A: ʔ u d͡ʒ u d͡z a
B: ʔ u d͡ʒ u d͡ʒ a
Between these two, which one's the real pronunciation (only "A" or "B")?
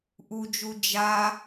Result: B